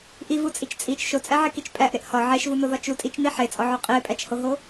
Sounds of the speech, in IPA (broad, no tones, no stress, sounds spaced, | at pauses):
ʔ i v u t͡sʼ i t͡ʃ t͡sʼ i t͡ʃ ʃ o t͡sʼ æ ʕ e k i t͡ʃ pʼ æ ʔ ɾ e ʔ h ɒ ʕ e ʃ v u n o ð ɒ t͡ʃ u tʼ i t͡ʃ n i ħ e t͡sʼ ɒ ʕ o qʼ i e̯ pʼ æ t͡ʃ h o ɦ o